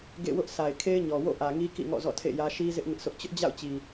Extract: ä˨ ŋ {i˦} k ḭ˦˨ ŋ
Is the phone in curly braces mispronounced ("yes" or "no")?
no